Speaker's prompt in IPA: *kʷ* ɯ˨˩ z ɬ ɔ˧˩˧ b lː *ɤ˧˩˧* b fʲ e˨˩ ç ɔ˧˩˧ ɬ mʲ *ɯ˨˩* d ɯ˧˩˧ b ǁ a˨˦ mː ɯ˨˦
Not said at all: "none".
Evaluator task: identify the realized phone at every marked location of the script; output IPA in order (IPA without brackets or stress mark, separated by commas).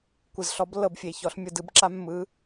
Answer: kʷ, ɤ˧˩˧, ɯ˨˩